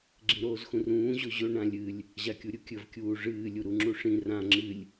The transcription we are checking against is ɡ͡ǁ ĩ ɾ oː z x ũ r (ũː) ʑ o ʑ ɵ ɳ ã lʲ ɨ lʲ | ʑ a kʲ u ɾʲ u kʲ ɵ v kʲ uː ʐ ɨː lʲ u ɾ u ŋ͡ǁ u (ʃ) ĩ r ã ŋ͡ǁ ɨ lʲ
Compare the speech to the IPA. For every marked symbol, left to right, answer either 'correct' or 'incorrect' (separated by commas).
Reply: correct, incorrect